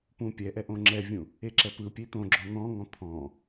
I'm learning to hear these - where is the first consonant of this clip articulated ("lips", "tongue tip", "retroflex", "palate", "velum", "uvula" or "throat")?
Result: lips